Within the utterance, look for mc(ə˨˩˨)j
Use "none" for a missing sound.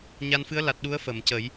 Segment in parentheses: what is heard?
ə˨˩˦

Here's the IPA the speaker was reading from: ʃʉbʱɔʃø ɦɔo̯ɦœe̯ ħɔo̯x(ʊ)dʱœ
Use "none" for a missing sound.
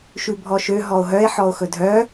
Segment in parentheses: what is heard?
ɵ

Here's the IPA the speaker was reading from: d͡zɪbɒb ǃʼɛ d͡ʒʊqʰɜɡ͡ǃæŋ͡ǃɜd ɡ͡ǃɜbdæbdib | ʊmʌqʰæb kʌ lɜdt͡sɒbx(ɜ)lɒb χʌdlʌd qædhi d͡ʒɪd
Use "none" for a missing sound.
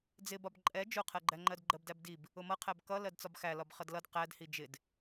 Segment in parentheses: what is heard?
æ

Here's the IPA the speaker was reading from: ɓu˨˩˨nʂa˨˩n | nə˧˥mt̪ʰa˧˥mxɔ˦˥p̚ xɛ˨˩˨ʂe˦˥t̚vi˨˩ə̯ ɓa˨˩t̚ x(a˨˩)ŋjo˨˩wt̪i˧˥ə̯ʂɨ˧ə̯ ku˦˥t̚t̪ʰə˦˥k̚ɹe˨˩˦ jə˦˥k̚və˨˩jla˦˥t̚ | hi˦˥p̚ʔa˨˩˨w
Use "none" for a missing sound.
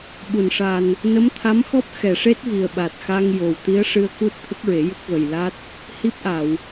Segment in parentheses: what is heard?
a˧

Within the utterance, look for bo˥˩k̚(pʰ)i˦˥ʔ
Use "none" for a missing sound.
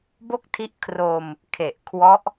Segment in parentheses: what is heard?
tʰ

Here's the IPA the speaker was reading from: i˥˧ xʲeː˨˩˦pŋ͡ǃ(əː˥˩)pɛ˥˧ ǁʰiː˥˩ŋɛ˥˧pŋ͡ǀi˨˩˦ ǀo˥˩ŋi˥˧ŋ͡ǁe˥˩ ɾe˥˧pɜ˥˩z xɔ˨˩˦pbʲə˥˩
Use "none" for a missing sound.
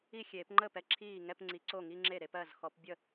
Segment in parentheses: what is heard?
əː˥˩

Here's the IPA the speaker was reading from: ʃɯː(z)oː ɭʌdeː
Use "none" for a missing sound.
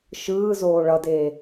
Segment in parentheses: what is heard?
z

